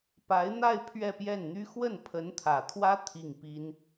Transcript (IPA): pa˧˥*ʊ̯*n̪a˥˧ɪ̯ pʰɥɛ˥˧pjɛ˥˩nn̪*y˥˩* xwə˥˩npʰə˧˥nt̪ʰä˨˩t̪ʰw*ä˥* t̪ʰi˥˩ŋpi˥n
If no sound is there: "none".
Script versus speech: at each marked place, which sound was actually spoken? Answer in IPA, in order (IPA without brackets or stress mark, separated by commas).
ɪ̯, y˥, ä˥